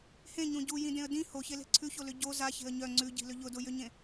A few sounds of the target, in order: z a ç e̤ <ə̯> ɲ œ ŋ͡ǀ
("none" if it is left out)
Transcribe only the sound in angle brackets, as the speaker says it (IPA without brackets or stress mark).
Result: ə̯